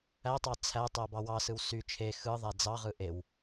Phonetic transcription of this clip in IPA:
ætˤɑ t͡sʰætˤo bɑwɑsɯw sy t͡ʃʰe xɯðˤæ d͡zɑʁɯ ʔew

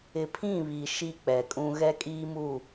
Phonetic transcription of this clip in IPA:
ɪ˨pʰĩ˦˨βi˨ ʃi˦ k͡pɛ˨kʼũ˦ ɣɛ˦kʼiː˦mu˦˨

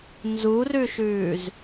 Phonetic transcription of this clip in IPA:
nzurʉʃʉːz

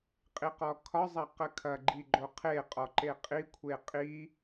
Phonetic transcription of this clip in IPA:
qʼiqɔkʰɒ zˤɐqəkʰɐ ɡ͡ǃiɡ͡ǃoqʰe qʼɔǃeqʼi kʷʰeqʼi

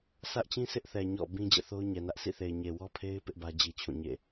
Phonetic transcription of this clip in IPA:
sä˦ʔt͡ɕĩ˦ sʰɪ˦ʔθɛ˨ ɲɔ̰˦˨ bĩ˦ d͡ʑɛ̰˦˨θo˦ʊ̯ɲɛ˨nä˦ʔ sḭ˦˨θe˨ɪ̯ ɲe˨wɔ˦pʰe˦ɪ̯ pɪ˦ʔbä˦ d͡ʑi˦t͡ɕʰũ˦˨ ɲḛ˦˨

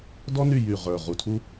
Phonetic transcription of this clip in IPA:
dɔ˥ny˥˨jy˧˩ ʁə˞˧˩ʁu˧˩tʰu˥

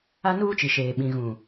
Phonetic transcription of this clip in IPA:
a˦nuː˦t͡ʃi˨ ʃeː˨ ɓĩ˨ɣũ˨

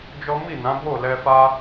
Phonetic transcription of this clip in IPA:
d͡ʒɔ˦ mi˦˨nã˨˦ bo˦˨ lɛ˧fa˦

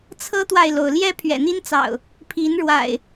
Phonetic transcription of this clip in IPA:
t͡sʰɤ˦t̪wa˨ɪ̯lo˩ʊ̯ ljɛ˦ pʰɥɛ̰˨˩n̪i˦nt͡sɑ̰˨˩ʊ̯ | pʰi˨˦nɻwa̰˨˩ɪ̯

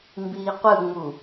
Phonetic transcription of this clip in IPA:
mbiːqʷɯŋ͡mu

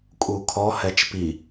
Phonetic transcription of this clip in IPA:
kʼukʰɔhɛt͡ʃ pi

